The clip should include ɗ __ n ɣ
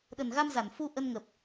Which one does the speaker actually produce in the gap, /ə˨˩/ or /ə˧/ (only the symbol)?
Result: ə˨˩